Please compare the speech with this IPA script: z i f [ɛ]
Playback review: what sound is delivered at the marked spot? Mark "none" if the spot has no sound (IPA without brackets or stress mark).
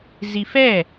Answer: ɛ